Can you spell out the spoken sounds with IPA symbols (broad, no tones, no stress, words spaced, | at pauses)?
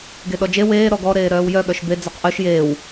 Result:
ɡeɗɔd͡ʒe weː ɾɔɡɔ ɾeːɾœːwjœ ɠœʃbe d͡zɔqʔœʃ jeːw